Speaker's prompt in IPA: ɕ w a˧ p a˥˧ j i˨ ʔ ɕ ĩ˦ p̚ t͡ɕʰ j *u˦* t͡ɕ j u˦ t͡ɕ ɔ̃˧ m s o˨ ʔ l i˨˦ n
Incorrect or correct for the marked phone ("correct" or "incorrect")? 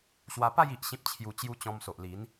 incorrect